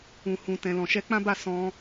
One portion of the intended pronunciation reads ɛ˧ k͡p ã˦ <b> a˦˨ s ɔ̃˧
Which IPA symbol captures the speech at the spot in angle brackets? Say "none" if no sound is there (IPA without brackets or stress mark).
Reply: b